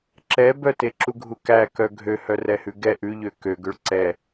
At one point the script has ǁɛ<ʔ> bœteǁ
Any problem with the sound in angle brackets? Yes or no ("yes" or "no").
yes